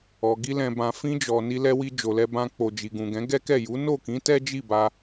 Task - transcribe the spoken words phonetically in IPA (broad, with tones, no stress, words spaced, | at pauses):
ɔ˨ ɡi˧lɛ̃˨ bã˨fĩ˧d͡ʒɔ˨ ni˧lɛ˧wi˧ d͡ʒo˨lɛ˧bã˧ k͡po˨d͡ʒi˨ɡũ˨ɡɛ̃˨˦ ɡɛ˦kɛ˦˨ ju˨˦no˦˨kĩ˨˦ tɛ˦d͡ʒi˦˨ba˧